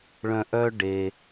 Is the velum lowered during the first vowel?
yes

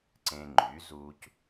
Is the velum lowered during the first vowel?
yes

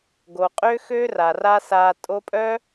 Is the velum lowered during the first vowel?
no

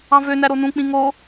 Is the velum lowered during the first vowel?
yes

